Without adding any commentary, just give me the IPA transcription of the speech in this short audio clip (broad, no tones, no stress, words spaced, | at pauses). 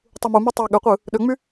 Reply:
tˤumumy tˤɑ ɠøqʷɯ | ɗøŋ͡my